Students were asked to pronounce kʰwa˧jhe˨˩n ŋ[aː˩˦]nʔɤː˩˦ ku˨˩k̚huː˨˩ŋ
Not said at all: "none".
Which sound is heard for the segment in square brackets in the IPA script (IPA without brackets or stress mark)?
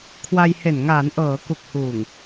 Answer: aː˩˦